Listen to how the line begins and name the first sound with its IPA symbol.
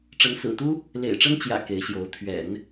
ʈ͡ʂ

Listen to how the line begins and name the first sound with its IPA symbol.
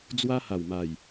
d͡z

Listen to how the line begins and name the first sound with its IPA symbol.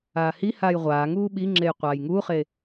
aː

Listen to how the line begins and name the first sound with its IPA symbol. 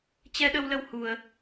t͡ɕ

